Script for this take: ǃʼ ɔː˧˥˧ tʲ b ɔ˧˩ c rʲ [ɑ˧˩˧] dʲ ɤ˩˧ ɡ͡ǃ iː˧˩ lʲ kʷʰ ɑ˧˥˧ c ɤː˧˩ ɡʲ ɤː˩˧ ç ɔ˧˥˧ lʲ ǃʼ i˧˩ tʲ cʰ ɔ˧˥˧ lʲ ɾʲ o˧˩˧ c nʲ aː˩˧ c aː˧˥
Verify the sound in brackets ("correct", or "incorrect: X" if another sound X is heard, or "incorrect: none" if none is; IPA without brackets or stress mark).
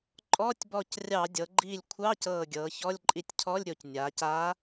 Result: correct